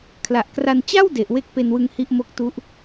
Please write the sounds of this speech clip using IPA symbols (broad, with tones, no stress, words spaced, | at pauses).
kʰla˨˩ʔkra˧n t͡ɕa˥˩w de˨˩ʔwe˥˩k̚pe˧n wɯ˦˥ŋhi˥˩ʔmo˦˥k̚tu˦˥ʔ